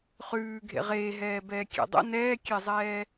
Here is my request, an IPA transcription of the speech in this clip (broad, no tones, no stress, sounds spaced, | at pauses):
χ ʉː ɡʱ ḛ ʁ eː ɦ ɛː b ɛː kʲ ɛ̰ dˤ ə̰ n ɛː kʲ ɛ zˤ ɛː